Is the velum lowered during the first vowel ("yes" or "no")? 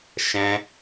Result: yes